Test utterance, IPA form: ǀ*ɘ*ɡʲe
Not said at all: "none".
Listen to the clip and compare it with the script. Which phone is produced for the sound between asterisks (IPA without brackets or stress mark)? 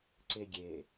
e